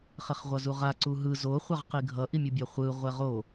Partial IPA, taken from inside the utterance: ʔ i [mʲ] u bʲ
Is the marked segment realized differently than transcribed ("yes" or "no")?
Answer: no